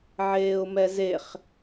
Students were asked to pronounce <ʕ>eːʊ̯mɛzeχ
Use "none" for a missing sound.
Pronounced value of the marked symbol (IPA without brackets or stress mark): ʕ